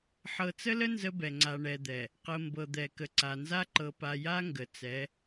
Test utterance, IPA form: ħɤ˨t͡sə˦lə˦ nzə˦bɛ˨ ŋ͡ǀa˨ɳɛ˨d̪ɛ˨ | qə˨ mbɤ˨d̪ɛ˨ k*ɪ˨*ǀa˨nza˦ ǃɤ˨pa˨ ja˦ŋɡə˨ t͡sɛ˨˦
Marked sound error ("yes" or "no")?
yes